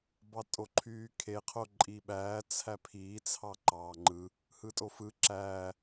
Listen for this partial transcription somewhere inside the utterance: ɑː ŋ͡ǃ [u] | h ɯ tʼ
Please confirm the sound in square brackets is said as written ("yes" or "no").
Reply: no